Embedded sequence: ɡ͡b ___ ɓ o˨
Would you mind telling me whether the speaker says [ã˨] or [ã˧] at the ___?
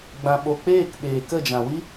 ã˨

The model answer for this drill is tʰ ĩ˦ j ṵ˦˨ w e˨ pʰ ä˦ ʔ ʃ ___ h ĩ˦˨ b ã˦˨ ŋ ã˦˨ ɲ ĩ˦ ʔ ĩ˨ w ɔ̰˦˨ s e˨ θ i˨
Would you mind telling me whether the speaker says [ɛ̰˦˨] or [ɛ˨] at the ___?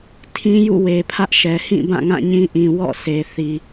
ɛ˨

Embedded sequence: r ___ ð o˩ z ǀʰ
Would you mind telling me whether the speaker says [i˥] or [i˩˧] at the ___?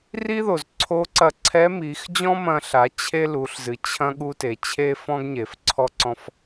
i˥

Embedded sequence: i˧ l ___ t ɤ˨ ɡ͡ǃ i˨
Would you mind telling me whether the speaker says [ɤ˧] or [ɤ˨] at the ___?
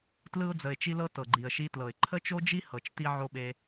ɤ˧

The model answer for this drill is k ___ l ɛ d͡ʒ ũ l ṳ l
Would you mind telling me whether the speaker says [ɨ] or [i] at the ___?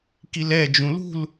i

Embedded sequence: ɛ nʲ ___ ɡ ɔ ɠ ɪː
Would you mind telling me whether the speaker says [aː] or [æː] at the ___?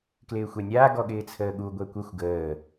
aː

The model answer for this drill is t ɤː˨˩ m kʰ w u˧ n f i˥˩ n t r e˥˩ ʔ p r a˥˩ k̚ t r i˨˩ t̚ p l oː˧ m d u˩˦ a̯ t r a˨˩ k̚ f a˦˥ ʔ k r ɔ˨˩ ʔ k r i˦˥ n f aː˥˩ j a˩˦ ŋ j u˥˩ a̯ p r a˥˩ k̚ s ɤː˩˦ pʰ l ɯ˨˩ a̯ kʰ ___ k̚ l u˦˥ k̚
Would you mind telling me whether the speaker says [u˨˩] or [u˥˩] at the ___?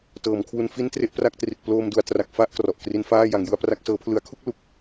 u˥˩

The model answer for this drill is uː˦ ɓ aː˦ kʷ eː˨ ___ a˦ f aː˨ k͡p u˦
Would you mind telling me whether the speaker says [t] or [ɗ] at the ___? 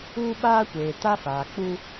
t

